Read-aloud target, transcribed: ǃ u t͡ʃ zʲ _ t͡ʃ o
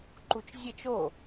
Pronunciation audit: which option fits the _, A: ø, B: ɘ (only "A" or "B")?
B